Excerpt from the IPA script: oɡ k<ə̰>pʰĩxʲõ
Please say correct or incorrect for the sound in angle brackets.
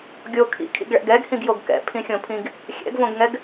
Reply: incorrect: ɛ̰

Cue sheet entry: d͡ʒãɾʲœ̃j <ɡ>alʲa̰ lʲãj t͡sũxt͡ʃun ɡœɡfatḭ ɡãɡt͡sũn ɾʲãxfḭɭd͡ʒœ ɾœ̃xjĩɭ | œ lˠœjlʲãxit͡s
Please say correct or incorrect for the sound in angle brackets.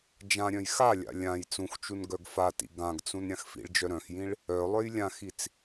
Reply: incorrect: x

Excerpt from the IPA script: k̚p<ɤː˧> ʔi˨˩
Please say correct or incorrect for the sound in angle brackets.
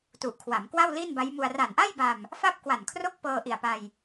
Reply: correct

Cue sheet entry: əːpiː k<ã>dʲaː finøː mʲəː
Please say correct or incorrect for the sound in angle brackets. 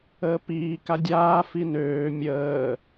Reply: incorrect: a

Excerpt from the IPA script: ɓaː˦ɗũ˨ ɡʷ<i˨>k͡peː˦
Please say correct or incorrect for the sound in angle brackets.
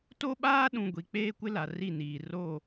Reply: correct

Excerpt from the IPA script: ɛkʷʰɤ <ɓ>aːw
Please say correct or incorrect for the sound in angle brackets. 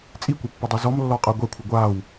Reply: incorrect: ɡʷ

